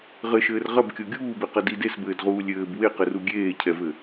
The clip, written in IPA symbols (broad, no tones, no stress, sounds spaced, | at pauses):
ʁ ɘ ʃ ɘː r ʁ ɐ b kʲ o ɡʲ uː b e q ɐ d i d e s b ɘː d ʁ uː lʲ ɘː b w e q ɘ r u ɡʲ eː cʰ ɛ v ɘ